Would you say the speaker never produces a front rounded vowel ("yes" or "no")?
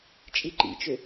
no